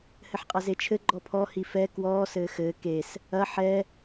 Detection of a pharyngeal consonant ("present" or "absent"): present